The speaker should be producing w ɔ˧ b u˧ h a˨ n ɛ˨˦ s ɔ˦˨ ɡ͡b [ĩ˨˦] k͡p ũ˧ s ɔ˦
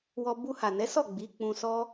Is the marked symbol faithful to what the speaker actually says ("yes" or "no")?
no